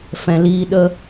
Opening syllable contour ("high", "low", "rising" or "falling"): low